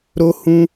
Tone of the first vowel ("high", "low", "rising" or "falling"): high